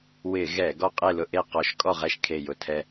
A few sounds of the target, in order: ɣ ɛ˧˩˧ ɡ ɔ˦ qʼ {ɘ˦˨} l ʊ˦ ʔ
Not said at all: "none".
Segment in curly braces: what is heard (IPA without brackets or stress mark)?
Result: e˦˨